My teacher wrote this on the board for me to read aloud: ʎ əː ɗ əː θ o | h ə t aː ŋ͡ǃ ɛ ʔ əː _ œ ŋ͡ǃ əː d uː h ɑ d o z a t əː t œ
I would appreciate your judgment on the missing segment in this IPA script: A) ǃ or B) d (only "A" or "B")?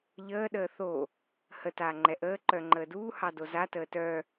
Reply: A